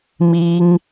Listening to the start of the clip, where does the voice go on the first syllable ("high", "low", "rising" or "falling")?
high